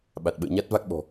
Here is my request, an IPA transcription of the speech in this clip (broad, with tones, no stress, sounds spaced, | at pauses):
ɓ a˨˩ t̚ ɓ ə̰ː˧˨ ɲ a˦˥ t̚ v a˦˥ k̚ ɓ ɔ̤˨˩